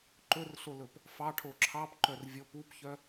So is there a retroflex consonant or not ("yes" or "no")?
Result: yes